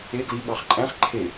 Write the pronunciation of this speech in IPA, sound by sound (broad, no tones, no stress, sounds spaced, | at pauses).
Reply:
e ɡ l i ɠ ɑ χ ǃʼ æ̃ χ ǃʰ e